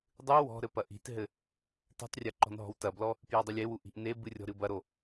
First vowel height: high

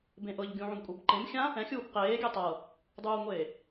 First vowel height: mid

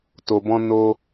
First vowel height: mid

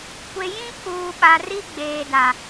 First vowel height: mid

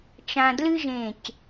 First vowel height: low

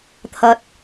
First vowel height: low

